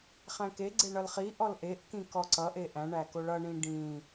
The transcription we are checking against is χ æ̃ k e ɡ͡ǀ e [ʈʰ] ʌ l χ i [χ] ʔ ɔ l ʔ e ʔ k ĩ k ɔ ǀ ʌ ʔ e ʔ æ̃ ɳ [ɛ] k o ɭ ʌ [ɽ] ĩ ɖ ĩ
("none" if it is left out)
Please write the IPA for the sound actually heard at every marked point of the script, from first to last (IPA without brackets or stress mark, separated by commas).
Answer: ɳ, none, æ, ɳ